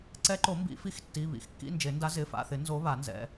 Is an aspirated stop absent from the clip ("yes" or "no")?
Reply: yes